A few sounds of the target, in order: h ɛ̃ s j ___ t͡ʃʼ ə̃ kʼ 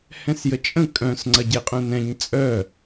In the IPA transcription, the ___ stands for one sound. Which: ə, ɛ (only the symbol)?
ə